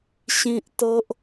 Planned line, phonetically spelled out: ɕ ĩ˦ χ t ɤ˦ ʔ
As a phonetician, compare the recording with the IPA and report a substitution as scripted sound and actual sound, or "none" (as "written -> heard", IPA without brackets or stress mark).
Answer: χ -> ʔ